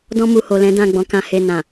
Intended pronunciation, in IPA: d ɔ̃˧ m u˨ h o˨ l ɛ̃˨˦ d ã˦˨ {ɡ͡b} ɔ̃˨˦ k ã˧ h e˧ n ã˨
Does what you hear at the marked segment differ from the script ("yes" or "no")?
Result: no